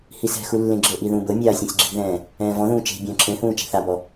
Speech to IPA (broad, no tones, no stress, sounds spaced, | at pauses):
h i s ɛ̤ x u lː ẽ ɡ͡ǁ ɤ ʔ i ð ũː b ɤ mʲ aː sʲ ɛ̃ sʲ ɡ͡ǁ i̤ ð ɛ̃ː | ɛ̃ː v ɔ̃ ð ũː t͡ʃ e̤ bʲ ɔ̃ː ǁʰ ẽ h ũː t͡ʃ ɛ̤ θ a b ɔ